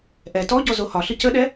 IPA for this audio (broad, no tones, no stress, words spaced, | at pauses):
ʔɛ tɔɟɔ zohɒɬɨ cəɗɛ